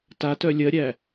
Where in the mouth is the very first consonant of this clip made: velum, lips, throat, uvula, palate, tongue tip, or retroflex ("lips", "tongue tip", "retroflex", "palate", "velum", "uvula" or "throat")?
tongue tip